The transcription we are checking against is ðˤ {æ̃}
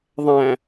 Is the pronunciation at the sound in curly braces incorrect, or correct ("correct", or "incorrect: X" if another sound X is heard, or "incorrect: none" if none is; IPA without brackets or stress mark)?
correct